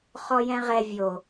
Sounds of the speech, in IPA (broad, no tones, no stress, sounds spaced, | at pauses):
χ ɔ j ɛ̃ ʁ ɛ vʲ o